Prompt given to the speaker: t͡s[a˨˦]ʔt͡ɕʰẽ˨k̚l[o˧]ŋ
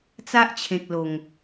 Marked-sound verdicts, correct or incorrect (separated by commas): incorrect, incorrect